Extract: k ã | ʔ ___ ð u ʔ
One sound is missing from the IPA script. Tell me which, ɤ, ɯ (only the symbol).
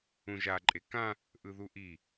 ɯ